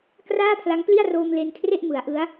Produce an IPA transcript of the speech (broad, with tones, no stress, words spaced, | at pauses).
kraː˥˩pʰla˦˥ŋpli˥˩a̯roː˧m le˧nkʰre˥˩ʔmɯ˩˦a̯ ʔɯ˦˥a̯